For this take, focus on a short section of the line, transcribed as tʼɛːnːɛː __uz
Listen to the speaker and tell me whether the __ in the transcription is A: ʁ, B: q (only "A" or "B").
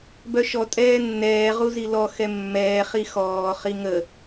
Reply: A